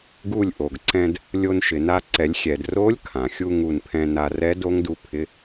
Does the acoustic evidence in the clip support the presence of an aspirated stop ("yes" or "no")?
yes